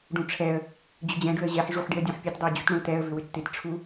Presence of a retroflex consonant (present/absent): present